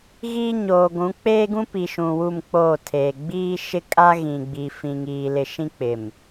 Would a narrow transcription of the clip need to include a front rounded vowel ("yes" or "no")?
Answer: no